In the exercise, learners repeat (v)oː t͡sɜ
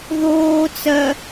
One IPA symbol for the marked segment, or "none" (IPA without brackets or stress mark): ð